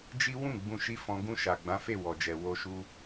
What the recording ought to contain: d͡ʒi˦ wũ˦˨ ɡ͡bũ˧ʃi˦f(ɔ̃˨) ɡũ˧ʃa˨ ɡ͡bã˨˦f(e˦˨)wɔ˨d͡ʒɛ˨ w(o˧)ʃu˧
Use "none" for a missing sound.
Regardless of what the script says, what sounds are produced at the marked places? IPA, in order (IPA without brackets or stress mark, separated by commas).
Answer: ɔ̃˧, e˦˨, o˧